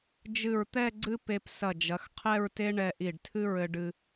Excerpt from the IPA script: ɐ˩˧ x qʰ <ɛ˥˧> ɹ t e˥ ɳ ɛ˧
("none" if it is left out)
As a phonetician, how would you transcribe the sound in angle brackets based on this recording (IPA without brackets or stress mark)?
ɛ˥˧